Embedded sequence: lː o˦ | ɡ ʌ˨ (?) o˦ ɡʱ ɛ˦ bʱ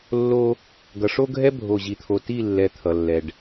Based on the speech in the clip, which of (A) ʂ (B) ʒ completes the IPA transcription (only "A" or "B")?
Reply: A